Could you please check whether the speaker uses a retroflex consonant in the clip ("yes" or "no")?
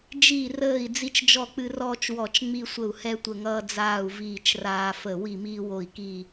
no